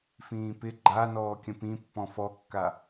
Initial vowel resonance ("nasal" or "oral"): nasal